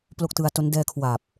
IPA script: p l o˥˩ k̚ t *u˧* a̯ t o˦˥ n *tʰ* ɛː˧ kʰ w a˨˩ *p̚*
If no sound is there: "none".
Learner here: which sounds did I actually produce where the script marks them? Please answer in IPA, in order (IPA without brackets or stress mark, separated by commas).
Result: ɯ˧, d, p̚